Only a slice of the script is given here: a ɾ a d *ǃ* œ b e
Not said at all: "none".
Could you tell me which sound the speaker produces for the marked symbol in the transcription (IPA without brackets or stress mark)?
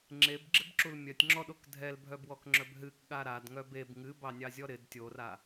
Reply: ŋ